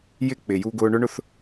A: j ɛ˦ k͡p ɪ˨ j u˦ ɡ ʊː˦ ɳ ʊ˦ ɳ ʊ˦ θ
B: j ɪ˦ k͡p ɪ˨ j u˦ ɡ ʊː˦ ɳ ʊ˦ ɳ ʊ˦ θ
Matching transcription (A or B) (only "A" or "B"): B